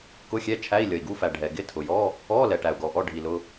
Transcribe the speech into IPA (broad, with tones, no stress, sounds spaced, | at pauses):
k ʊ˧˥˧ xʲ ɛ˧˥˧ t͡ʃʰ æ˧˥˧ i̯ lʲ ʌ˩ i̯ ɡ u˧˥˧ f æ˩ ɖʱ ɛ˩ ɡ ɪ˧˥˧ tʰ ʊ˩ j ɔ˧˥˧ | ɔ˧˥˧ l ɛ˩ ʈ æ˩ u̯ ɡ ɔ˩ ʔ ɔ˧˥˧ ɖʱ i˩ l ʊ˧˥˧